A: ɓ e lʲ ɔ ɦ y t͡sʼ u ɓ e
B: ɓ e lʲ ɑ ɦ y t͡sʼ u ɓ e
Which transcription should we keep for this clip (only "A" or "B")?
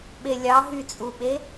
B